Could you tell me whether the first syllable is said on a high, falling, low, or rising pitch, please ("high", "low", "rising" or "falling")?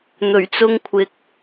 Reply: low